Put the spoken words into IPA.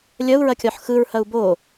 lʲ ɐ u̯ ɹ ɐ kʲ ɒ ħ x ɯ ɹ h ɐ u̯ b o

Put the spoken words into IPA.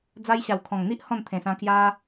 d͡z a˧ j ɕ a˨˩ w kʰ ɔ̃˨˩ ŋ n̪ i˦ ʔ h ɔ̃˥˧ n t̪ʰ ẽ˨˩ s ã˧ k j a˦

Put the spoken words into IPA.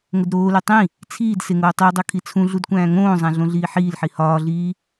ŋ o d ɾ oː l e tˤ ĩ | t͡sʰ iː d s e ŋ oː tˤ i ʊ̯ dˤ o kʰ i t͡sʰ ũ ɮ u d kʷ æ̃ː ŋ õː zˤ æ̃ ɮ õ ɮ iː ħ iː l ħ i h ɒː ɮ iː

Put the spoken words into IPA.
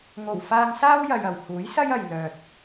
ŋ o˨˩ w f aː˧ ŋ s aː˥ w j ɐ˧ j ɐ˨ w h uː˨˥ j s ɐ˥ j ɐ˨ j l œː˨ t̚

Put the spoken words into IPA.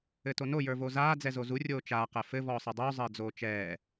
ɘ t o n o j ə˞ v o z aː d͡z ɛ z o z u rʲ oː t͡ʃ aː q ɛ f ɘ v ɔː sˤ ɯ dˤ uː zˤ ɘː d͡z oː t͡ʃ ɛː

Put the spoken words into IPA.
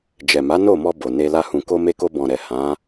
d͡ʒ ɛ˨ m a˨˦ n o˦˨ m ɔ˧ b o˨ n e˧ l a˧ h ũ˨ k o˧ m e˧ k o˧ b ɔ̃˨ ɾ ɛ˨ h ã˨˦

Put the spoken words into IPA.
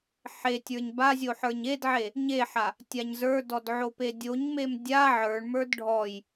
ħ e tʲ ə˞ ɲ b a zʲ o ħ ə˞ ɲ e d ʕ e | ɲ e ħ a | tʲ a ɲ z ə˞ d ɔ d ʕ o p e dʲ o ɲ m e m dʲ a ʕ ə˞ ɳ m ə˞ d ɖʱ ɔ j

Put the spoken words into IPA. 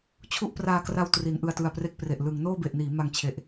t͡ɕʰ u˥˩ ʔ p r aː˧ k r a˧ w t r i˩˦ n ʔ ɯ˨˩ a̯ t ɯ˨˩ a̯ p r e˦˥ k̚ p r e˨˩ ʔ l ɯ˩˦ ŋ n oː˥˩ b e˨˩ ʔ n iː˩˦ m a˧ ŋ t͡ɕʰ e˨˩ ʔ

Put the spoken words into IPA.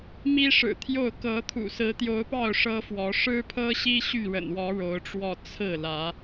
m i˦ ʂ ɻ̩˨˩ t̪ʰ j o˥˨ ʊ̯ k ɤ˨˦ t̪ʰ ṵ˨˩ s ɹ̩˨˦ t̪ j o˨˦ ʊ̯ p ɑ˥˨ ʊ̯ ʂ ɤ˦ f w ɔ˨˦ ʂ ɻ̩˦ pʰ ɤ˦ ɕ i˦ ɕ y˥˨ ɻ ə̰˨˩ n w ɔ˨˦ ɻ o˨˦ ʊ̯ ʈ͡ʂ w ɔ˥˨ t͡sʰ ɹ̩˥˨ l ä˨˦

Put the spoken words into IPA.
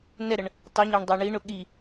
n ɛ ɾ ə ɳ | tˤ u ɲ ɑ ɳ dˤ ə˞ ɳ i ɳ ʊ ɠ i

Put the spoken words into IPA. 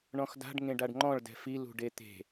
ɳ ɔ̃ x d a̤ ɖ ŋ ẽ ɖ a ɖ ŋ͡ǃ ɔ̃ ɭ d ɛ̤ f i l ṳ ɖ e t̪ e̤

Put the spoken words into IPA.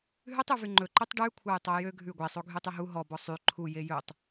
ɦ ʉ tˤ y v y ŋ͡ǃ ɵ ǃ y tˤ ɖ ʉ kʷʰ ɑ j tˤ o j ø ɡʱ ʉ ɡʷ e sˤ o ɡʱ y tˤ y ɦ u ɦ ɔ b ɔ sˤ y ǃʰ u j e j ɵ tˤ

